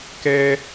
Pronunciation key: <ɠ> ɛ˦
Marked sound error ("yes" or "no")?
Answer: yes